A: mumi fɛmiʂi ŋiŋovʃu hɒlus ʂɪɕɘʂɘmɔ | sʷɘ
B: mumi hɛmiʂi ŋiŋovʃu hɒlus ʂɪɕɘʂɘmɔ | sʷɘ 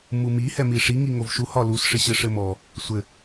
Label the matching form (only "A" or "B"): B